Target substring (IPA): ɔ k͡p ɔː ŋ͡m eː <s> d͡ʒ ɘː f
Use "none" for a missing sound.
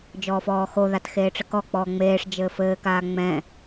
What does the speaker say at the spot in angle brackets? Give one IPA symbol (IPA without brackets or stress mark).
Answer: ʂ